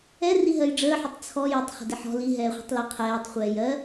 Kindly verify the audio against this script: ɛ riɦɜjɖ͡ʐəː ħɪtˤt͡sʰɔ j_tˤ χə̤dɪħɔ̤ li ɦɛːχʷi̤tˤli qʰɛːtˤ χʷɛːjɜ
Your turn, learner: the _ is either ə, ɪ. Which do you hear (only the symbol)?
ə